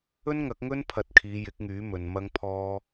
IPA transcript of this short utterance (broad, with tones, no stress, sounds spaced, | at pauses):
ɵ˥ n ŋ ɐ˨˥ k̚ ŋ ɵ˥ n pʰ ɐ˧ t̚ kʰ iː˨˧ j ɪ˨˥ k̚ ŋ yː˨˥ m ɵ˨ n m ɐ˥ ŋ pʰ ɔː˥